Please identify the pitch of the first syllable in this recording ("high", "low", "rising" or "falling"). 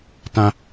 high